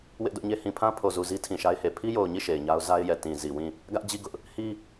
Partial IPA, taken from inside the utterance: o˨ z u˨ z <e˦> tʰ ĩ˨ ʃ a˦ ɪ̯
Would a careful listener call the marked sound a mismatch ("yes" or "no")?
yes